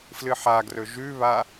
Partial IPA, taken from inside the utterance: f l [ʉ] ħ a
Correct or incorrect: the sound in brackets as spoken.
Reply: incorrect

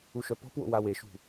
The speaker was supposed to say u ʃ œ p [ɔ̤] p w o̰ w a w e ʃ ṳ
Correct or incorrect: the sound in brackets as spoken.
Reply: correct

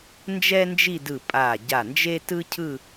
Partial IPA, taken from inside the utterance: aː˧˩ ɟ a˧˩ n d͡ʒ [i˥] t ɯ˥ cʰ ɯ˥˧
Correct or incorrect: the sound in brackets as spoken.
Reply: incorrect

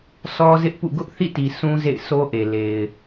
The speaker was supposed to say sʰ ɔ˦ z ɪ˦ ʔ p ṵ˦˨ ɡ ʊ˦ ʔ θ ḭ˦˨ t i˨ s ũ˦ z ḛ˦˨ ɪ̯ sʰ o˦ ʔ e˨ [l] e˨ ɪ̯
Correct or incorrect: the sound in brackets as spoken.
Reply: correct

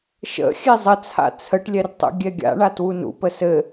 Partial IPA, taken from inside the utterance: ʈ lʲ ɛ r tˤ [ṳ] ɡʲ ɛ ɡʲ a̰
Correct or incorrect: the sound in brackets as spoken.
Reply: incorrect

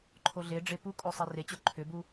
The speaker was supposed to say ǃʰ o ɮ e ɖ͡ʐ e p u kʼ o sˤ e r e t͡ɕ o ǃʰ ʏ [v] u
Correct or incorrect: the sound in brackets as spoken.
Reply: incorrect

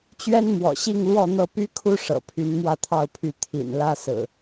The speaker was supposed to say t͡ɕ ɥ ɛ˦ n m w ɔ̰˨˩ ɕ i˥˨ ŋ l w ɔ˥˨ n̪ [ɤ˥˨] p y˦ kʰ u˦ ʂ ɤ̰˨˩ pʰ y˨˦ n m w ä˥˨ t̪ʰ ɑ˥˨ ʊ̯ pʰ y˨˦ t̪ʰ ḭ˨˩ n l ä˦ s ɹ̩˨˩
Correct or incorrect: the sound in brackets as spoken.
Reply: correct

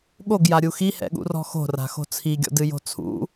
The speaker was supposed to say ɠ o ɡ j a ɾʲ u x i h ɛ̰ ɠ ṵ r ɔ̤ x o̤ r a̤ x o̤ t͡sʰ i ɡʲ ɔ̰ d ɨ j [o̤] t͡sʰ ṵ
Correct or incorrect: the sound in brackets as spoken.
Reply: correct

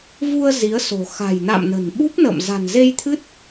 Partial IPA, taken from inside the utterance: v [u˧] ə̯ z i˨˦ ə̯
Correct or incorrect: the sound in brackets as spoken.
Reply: correct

